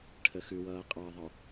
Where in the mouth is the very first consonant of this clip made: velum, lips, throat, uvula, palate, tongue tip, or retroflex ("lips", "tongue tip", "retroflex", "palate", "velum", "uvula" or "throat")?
retroflex